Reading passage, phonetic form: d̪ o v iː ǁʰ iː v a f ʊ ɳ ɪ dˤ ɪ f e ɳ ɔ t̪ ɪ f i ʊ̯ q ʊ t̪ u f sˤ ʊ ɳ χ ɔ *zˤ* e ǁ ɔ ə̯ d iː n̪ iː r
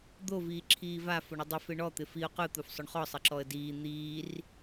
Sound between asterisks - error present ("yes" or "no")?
yes